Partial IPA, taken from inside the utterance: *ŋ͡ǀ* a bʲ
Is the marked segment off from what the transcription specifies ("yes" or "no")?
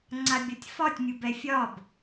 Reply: no